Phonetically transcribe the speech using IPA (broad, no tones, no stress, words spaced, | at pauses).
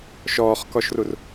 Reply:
ʃɔːχkɔʃrur